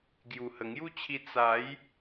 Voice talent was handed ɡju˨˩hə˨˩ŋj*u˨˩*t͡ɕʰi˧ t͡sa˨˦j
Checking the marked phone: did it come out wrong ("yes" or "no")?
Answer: yes